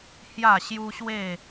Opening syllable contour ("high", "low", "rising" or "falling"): falling